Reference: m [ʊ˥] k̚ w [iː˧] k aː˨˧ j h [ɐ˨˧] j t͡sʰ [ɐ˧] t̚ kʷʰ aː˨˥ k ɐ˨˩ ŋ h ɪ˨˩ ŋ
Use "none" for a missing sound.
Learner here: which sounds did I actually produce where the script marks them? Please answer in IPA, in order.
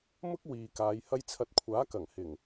ʊ˥, iː˨, ɐ˥, ɐ˧

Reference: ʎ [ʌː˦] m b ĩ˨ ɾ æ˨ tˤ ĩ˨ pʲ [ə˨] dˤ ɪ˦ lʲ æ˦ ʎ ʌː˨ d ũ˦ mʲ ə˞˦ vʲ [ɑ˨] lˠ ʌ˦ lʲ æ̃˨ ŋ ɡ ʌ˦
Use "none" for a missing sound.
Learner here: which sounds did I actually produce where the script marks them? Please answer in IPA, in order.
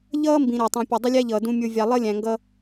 ʌː˦, ʊ˨, ɑ˨

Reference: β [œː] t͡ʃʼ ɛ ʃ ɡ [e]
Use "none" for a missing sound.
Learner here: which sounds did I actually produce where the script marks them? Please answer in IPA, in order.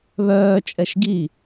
œː, i

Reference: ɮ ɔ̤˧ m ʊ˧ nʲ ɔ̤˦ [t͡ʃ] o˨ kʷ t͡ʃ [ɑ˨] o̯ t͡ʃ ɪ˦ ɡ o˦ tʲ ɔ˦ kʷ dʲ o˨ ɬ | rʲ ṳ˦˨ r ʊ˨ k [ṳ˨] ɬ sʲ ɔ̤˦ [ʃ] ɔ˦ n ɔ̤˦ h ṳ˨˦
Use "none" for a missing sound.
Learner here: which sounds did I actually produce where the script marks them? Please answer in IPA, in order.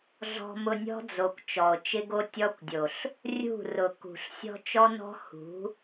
d͡z, ɔ˨, ṳ˨, t͡ʃ

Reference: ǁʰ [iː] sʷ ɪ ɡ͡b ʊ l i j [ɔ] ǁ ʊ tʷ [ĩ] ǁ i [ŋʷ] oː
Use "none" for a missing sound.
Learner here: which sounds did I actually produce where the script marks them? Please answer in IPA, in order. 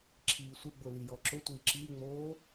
iː, ɔ, i, ŋ͡m

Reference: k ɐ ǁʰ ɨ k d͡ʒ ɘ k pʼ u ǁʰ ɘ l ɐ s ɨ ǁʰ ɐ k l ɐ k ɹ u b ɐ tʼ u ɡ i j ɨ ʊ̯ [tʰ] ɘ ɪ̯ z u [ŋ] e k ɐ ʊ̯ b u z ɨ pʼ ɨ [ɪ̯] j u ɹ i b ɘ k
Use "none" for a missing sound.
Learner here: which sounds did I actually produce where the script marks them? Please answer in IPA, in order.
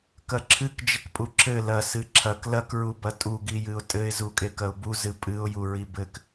tʼ, kʼ, ʊ̯

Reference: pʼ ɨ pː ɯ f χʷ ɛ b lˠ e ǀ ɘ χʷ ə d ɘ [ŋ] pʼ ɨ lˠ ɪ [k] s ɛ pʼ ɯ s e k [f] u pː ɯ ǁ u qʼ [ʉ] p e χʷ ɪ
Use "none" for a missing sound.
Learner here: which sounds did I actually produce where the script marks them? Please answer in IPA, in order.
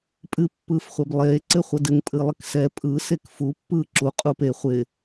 ŋ, k, f, u

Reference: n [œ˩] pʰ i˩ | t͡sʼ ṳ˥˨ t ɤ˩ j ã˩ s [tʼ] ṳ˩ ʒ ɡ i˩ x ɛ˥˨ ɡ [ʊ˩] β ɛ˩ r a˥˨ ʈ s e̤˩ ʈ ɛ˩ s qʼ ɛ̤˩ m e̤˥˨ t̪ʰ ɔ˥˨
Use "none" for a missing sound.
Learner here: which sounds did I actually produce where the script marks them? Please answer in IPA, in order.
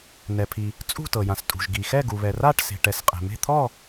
ɛ˩, tʼ, u˩

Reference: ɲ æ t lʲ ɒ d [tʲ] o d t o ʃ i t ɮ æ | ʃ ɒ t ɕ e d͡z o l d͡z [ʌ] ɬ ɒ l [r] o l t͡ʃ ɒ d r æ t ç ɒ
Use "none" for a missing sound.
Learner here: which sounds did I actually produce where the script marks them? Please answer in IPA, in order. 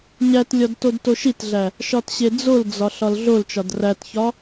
t, ɒ, ɮ

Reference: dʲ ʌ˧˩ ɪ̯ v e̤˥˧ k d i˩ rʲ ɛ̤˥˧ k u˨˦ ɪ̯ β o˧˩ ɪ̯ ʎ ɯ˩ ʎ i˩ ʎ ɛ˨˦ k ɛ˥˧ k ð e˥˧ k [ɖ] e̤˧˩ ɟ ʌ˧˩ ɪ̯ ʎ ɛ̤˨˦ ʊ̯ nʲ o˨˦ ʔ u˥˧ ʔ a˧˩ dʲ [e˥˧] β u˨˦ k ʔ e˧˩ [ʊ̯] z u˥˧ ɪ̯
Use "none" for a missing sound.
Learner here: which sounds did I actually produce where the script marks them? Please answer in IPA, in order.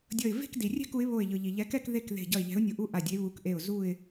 ð, e˨˦, ʊ̯

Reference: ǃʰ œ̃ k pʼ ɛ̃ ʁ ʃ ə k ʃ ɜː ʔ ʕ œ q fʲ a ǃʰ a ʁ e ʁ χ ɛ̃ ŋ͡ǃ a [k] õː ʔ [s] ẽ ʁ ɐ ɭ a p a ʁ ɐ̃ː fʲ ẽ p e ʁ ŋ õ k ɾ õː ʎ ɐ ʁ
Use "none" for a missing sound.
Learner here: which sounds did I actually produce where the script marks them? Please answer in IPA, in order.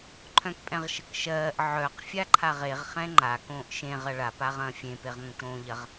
k, ʃ

